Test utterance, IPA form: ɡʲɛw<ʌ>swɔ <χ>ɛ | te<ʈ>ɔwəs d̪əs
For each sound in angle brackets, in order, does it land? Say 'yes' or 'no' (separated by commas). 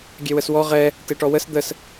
no, no, yes